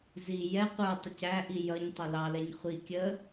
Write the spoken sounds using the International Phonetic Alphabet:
z i j ɛ qʷ ə˞ tˤ ʊ c æ ʔ i j ʌ ɲ tˤ ʊ l ɑ l ɛ ɲ χʷ i kʲ ə

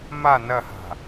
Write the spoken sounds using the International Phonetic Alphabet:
m a n ɐ h a̤

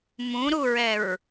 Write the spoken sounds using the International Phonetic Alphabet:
m ũ ɾ u ɹ ɛ ɹ

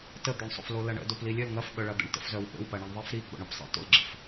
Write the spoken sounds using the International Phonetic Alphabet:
t ə d̪ œ ɳ sˤ o̰ f l o l ɐ ɳ ə̰ d o p l i lʲ œ l ŋ ɐ f ɓ œ ɭ ɐ d̪ ə̰ ɳ t ə̰ f z œ w ɓ ə̰ w p ɐ ɳ i ɳ ðˤ i f ɾ i ɡ͡b o̰ ɳ o p sˤ ḭ t o̰ l ɡ͡ǁ ə̰ f

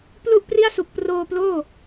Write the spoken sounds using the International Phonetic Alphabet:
p l u˥˩ ʔ p r i˥˩ a̯ s u˨˩ k̚ p r oː˧ p l oː˥˩

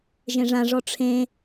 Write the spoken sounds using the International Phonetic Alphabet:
ʒ ẽ ʐ ã ʐ ɔ ʈ͡ʂʰ ẽ

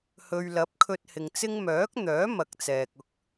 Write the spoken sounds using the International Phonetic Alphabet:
h ɵ˨ ɥ l ɐ˨˥ p̚ kʰ ɵ˧ t̚ h ɪ˨ ŋ t͡s ɪ˥ ŋ m œː˨˥ k̚ n̪ œː˨˥ m ɐ˨˥ k̚ t͡s ɛː˨ k̚ ʊ˧ k̚

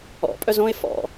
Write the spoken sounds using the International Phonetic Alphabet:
ɔ̰ pʼ œ z õ ɪ̯ f ɔ̰

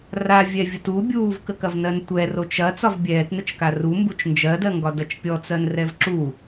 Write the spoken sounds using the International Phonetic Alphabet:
r a vʲ ɛ vʲ ə t u bʲ uː v k ə k ɐ v n ɜ n tʷ ɛ r o t͡ʃ ɐ t͡s ɒ v bʲ ɛː t n ə t͡ʃ k a r u m b u t͡ʃ n d͡ʒ ɜ d ɜ ŋ ɡ ɒ d ɐ t͡ʃ pʲ ɔ t͡s ɜ n r ɛ v ǁ u

